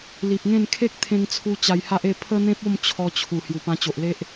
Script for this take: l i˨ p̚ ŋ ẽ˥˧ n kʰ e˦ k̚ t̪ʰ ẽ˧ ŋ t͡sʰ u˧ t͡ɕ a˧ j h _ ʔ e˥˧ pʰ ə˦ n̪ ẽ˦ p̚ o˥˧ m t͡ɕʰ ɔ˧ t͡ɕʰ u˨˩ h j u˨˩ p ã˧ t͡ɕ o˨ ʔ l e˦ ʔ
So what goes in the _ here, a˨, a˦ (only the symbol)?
a˦